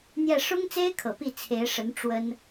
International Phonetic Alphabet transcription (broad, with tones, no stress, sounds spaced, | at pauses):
n̪ j ɛ˥˩ ʂ ʊ˥ ŋ t͡s e˥ ɪ̯ kʰ ɤ˨˩ p i˥˩ t͡sʰ e˧˥ ɪ̯ ʂ ə˧˥ n ʈ͡ʂ w ə˥ n